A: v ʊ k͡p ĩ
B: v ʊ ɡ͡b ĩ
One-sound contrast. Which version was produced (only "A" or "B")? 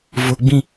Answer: B